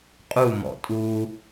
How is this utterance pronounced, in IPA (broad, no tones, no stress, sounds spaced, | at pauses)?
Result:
qʼ u m ɔ̰ tʼ u